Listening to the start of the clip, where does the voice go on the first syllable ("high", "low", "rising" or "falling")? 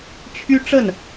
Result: high